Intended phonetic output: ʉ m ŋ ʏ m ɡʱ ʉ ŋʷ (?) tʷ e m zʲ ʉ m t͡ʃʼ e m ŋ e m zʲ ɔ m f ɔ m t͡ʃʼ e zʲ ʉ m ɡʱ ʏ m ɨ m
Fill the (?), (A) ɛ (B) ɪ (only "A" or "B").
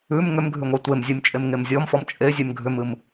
A